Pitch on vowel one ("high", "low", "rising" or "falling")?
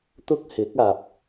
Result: high